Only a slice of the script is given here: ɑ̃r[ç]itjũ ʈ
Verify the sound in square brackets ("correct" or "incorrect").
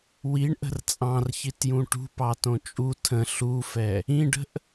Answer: correct